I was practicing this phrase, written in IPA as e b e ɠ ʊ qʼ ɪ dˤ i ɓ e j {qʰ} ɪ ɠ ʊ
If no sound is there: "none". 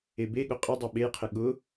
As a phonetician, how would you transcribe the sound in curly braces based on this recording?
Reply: qʰ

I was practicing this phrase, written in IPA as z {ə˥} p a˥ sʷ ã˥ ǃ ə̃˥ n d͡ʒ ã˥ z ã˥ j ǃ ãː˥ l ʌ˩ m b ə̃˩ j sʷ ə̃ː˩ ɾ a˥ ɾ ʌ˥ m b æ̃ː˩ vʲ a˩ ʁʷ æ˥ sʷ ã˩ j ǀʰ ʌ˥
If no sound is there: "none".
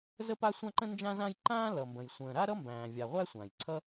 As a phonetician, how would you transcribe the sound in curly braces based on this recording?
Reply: ə˥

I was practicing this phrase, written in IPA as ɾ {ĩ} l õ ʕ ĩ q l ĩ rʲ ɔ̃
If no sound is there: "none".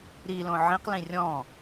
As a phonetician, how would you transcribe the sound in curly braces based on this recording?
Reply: i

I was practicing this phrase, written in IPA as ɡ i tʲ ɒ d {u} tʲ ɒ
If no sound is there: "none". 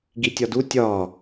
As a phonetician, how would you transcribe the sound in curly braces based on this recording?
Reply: u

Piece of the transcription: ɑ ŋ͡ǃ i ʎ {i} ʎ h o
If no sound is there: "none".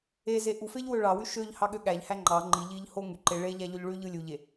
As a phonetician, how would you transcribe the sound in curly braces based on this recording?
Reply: i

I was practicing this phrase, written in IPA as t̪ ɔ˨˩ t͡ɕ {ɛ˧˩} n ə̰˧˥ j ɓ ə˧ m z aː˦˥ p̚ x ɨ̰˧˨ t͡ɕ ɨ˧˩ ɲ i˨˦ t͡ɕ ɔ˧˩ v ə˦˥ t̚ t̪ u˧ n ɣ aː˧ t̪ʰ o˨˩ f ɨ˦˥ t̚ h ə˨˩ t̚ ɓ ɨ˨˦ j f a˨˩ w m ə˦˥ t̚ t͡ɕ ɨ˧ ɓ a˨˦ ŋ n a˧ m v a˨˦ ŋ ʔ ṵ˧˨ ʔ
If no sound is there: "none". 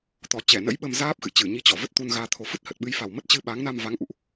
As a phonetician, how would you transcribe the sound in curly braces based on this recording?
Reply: ɛ˧˩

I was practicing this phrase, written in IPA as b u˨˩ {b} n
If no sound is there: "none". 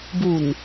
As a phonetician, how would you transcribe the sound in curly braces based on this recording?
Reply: none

